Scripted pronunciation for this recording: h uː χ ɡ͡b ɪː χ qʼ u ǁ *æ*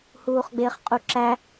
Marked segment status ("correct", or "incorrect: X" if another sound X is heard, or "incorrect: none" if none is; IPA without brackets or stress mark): correct